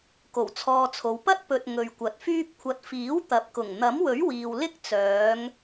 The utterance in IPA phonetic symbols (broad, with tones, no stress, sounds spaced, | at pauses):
k o˨˩ w t͡sʰ ɔː˧ t͡sʰ o˨˧ w p ɐ˥ t̚ p ɵ˨ t̚ ŋ ɵ˨ ɥ kʷ ɐ˨˥ t̚ f yː˥ p̚ kʷʰ ɐ˨ t̚ f iː˨˥ w t̪ ɐ˨˥ p̚ k ʊ˨˩ ŋ n̪ ɐ˨˥ m w ɵ˨˥ ɥ w iː˨ w l ɪ˥ k̚ t͡s œː˨˧ ŋ